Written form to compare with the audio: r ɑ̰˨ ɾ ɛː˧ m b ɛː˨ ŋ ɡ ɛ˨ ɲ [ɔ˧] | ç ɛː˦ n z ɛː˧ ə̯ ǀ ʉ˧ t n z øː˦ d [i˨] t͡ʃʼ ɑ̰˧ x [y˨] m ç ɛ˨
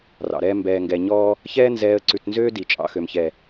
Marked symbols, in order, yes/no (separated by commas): no, yes, no